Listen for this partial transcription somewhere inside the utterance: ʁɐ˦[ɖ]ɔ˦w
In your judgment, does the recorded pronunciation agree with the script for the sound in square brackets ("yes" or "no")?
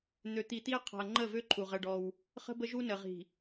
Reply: yes